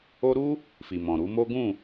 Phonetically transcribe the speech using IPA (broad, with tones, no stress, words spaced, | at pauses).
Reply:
o˧ɾu˦ | fi˨mɔ̃˨ ɾu˨˦mo˦ ɡũ˦˨